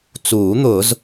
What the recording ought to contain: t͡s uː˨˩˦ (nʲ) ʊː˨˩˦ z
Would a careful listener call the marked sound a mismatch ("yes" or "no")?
yes